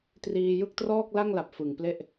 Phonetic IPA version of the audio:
triː˧jɯ˥˩k̚ trɔː˥˩k̚la˥˩ŋla˨˩p̚ fɯ˨˩ŋple˥˩ʔ

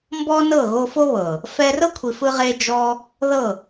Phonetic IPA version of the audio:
mbɔ˦nɤ˦˨ ɣo˧fo˦βɤ˨ | fɛ˧rɤ˦ kʷʰi˧fɯ˦ʁe˦ d͡ʒɔ˦ | ðɤ˦˨

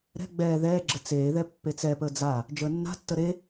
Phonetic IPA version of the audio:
ɾɛ̤ ɡ͡bɛː ðɛːɡ͡ǁə t͡seːðɛ pːet͡sɛpəː d͡za | d͡ʒəːnːa̤tːə ɾe

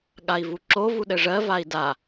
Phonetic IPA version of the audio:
ɠai̯vuǁo vuɗɘʐɜ vai̯da

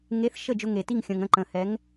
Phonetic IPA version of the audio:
ŋe˨˥θ ʃə˥˩d͡ʒʊ˧ŋe˩ti˥˩ŋ xʲə̃˩ŋə̃˥˩ ǃə̃˩hɛ˩˧ŋ

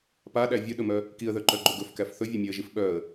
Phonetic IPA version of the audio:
paɗæ vʲɵɗɵmœ | kiə̯ðœǃœɡ͡ǃɵ ɡɵfkæf θɵvʲamʲœə̯ʒif ɓœə̯

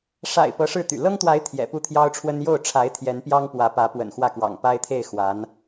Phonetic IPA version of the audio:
ʂa̰˨˩ɪ̯ pɤ˧˥ʂɻ̩˥˩t̪y̰˨˩ lɤ˥ŋt̪wa˧˥ɪ̯ t̪ʰjɛ̰˨˩pu˥˩t̪ʰjɑ˥ʊ̯ʈ͡ʂʰwə˥n jo˥˩ʊ̯ʈ͡ʂʰa˧˥ɪ̯ t̪ʰjɛ˧˥npjɑ˥ŋpwä˧˥pä˧˥ pwə̰˨˩nxwä˥˩kwɑ̰˨˩ŋ pa˥ɪ̯t̪ʰe˥˩ɪ̯ xwa˧˥n

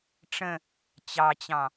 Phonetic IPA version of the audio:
ʈ͡ʂə̃ | t͡ɕɑt͡ɕɑ̃

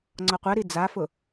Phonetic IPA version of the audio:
ŋ͡ǀɔqʷɛɾi d͡zafʊ

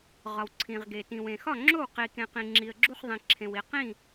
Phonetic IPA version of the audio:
ʁɒ˩wǀʰĩ˩ʁɡe˩ tĩ˩wẽ˩xɒ˥˩ŋ͡ǁo˥˩w qi˩kẽ˩ qĩ˩ŋ͡ǁi˩ə̯ɡ͡ǁu˥˩χðˤĩ˩ ǁʰẽ˩wi˩qĩ˥˩

